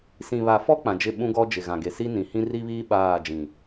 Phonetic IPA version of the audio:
s ĩ˨ β a˨ f ɔ˦ k͡p ã˨ d͡ʒ ɪ˦˨ ɓ ũ˦ ɡ ɔ˦ d͡ʒ ɪ˨ ɣ ã˨ ɡ e˨ s i˦ n ĩ˨ h ĩ˦ r i˦ β iː˦ ɓ aː˦˨ d͡ʒ ĩ˨

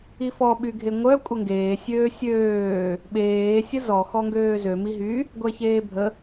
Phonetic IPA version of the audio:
i f ɔ ɓ y ɡʱ e ŋʷ œ kʷʼ ə ŋ ɡ eː sʲ øː sʲ øː | ɓ eː sʲ ə z ɔ x ɔ ŋ ɡ øː z ø m i ɦ y | ɡʷ ɛ ç eː bʱ ə

